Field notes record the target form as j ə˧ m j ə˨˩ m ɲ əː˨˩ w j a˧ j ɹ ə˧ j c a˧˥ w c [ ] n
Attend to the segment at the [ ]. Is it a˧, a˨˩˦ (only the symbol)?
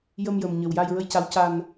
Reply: a˧